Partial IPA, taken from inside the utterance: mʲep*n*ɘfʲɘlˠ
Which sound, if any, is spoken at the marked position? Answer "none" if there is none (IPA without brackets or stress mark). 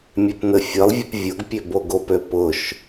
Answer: n